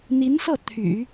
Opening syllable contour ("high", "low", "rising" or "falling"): rising